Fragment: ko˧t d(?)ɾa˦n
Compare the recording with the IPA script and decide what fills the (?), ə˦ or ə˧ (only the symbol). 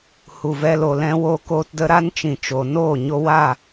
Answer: ə˧